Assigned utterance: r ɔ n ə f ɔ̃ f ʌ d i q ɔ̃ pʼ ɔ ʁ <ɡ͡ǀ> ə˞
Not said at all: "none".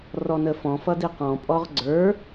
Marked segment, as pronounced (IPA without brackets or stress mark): ɡ͡ǀ